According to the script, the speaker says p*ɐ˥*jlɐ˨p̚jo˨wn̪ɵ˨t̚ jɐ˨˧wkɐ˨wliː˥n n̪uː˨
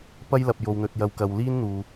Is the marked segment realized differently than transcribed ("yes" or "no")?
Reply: no